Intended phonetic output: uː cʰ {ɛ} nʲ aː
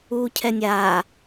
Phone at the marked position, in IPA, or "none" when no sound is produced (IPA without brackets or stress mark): ɛ